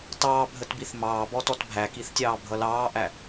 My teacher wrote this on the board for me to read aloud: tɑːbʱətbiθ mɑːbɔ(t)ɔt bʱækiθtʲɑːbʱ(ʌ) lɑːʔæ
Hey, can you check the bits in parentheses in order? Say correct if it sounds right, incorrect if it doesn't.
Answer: correct, correct

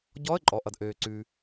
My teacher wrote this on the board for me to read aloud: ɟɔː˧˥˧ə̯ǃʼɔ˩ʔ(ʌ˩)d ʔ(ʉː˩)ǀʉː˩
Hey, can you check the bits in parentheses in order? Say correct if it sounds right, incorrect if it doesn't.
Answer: correct, incorrect: øː˩

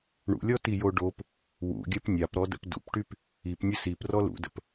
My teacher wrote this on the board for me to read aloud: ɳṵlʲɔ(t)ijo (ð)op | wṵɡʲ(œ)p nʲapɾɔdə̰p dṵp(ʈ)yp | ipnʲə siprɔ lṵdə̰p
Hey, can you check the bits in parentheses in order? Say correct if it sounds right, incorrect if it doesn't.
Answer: correct, incorrect: ɖ, correct, correct

